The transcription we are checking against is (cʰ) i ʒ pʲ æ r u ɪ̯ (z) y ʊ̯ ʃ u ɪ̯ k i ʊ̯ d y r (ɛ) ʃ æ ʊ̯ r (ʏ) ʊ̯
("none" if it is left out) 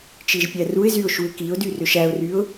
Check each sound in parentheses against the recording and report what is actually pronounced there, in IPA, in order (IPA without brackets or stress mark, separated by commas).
t͡ʃ, z, ʏ, y